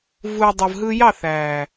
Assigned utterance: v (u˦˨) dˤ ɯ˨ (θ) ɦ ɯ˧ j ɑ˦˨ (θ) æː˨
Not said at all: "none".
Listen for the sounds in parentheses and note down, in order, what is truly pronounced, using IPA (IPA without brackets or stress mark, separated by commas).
u˨, v, θ